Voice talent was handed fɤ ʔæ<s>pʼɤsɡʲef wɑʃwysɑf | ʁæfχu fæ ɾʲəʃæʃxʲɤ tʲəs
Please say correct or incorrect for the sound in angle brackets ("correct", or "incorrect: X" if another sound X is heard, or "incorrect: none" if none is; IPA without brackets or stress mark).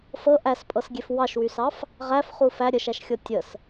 correct